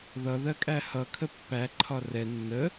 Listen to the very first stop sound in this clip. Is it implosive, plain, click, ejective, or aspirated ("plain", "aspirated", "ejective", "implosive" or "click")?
ejective